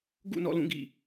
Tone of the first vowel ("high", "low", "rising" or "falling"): falling